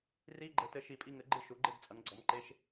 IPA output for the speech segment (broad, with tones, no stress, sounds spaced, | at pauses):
r i˧˥˧ ɡ͡ǃ ɘ˩˥ t ɘ˩˥ ʃ i˨ pʼ i˥˨ ŋ ɘ˩˥ ɡ͡ǃ ɨ˥˨ ʃ u˩˥ ɡ͡ǃ e˥˨ d t͡sʼ ɐ˩˥ ŋ ɡ͡ǀ ɔ˩˥ m ǃ e˧˥˧ ʃ